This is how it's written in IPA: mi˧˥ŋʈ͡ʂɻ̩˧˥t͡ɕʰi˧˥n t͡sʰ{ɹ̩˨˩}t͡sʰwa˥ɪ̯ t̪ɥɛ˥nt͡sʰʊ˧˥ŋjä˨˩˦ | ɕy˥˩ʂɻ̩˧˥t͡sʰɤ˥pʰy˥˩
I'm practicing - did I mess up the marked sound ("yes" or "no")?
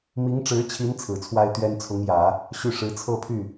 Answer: no